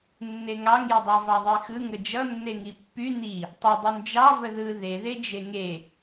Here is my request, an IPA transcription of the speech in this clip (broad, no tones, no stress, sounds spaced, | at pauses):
nː e ŋ ɑ ŋ j ə dˤ ɑ v ɑ ðˤ e x ɯ ŋ ə d͡ʒ ʌ nː e ŋ i pː y n i | tˤ ʌ dˤ u n d͡ʒ ɑ v ə ð ɯ ð e ð e d͡ʒ e ŋ e